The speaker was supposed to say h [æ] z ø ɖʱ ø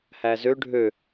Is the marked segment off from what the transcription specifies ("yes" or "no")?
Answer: no